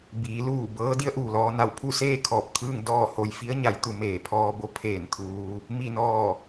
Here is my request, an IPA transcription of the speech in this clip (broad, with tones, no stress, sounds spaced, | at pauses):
b iː˩˧ l uː˧˩ b ɤː˧˥ d i˧˥ ə̯ ʔ uː˩ l ɔː˧ n a˧˩ w pʰ u˥˨ s eː˥˨ kʰ ɔː˧˩ p̚ t̪ʰ ɯː˥˨ ŋ d ɔː˥˨ h o˧ j f i˧˥ ə̯ ɲ a˩˧ j t̪ u˩˧ m eː˩ pʰ ɔː˧ b o˧˥ pʰ eː˧˩ n t̪ʰ uː˧ | m i˧˩ n ɔː˧˩